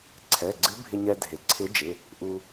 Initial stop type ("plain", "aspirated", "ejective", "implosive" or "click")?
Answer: click